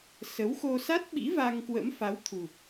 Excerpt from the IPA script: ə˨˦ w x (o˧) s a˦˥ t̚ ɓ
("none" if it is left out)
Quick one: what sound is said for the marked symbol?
o˧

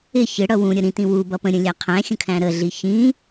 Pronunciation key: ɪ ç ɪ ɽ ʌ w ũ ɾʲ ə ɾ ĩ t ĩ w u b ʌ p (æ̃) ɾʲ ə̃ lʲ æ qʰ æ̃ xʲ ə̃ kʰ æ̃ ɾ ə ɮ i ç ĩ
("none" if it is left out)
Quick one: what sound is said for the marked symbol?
ə̃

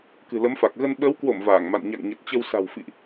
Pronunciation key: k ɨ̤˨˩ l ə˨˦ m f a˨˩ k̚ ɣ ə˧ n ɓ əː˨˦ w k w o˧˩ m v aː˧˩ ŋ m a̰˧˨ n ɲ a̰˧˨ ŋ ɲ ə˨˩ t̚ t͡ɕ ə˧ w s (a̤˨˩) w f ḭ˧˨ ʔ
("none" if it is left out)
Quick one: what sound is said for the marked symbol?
a̤˨˩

